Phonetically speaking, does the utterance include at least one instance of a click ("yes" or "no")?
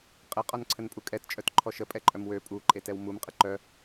yes